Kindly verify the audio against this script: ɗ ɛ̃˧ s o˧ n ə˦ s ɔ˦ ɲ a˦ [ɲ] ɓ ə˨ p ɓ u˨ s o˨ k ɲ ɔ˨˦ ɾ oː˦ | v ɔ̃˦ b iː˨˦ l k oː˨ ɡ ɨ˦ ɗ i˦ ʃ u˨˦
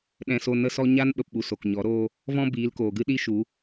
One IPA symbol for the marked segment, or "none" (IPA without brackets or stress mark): n